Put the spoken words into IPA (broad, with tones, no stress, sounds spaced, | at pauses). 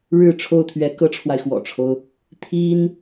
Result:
ɻ ɻ̩˥˧ ʈ͡ʂʰ o˥˩ ʊ̯ t̪ʰ ɥ ɛ˧˥ k ɤ˥ ʈ͡ʂʰ w a˨ ɪ̯ x w ɔ̰˨˩ ʈ͡ʂʰ o˦ ʊ̯ | t̪ʰ i˥ n